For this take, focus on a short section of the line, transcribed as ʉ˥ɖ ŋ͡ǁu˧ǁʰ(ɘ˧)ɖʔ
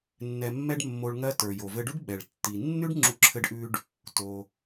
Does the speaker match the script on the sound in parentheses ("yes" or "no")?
yes